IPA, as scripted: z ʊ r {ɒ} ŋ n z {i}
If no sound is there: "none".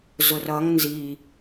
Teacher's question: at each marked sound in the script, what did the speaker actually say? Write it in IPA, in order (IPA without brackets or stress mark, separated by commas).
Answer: ʌ, i